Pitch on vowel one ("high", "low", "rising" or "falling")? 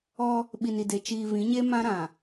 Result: high